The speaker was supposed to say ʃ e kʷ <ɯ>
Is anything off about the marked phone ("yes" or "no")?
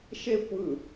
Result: no